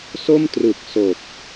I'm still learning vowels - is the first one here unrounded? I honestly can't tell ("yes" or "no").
no